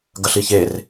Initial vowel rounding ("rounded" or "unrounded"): unrounded